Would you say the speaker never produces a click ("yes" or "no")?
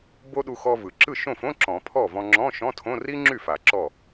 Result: no